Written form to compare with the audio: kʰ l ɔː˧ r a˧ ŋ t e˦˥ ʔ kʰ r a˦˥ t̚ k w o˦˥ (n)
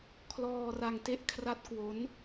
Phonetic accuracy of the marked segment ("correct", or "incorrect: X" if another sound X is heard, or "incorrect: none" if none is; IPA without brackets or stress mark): correct